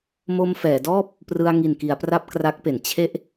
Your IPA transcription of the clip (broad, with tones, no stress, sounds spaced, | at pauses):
m o˧ m f ɛː˩˦ d ɔː˥˩ p̚ | p r ɯ˧ a̯ ŋ i˨˩ n k i˩˦ a̯ p r a˥˩ p̚ k r a˦˥ k̚ p e˩˦ n t͡ɕʰ e˦˥ ʔ